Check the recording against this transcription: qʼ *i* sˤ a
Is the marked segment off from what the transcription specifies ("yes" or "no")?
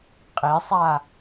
no